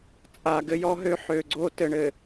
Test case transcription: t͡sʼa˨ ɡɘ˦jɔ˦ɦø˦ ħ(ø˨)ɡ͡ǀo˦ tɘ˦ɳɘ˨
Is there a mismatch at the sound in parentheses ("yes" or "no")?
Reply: no